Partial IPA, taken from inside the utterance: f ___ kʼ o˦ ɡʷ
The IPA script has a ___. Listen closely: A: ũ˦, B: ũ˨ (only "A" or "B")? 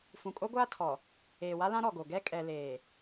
B